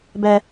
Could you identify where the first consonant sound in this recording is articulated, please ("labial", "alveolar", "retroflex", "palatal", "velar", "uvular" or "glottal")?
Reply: labial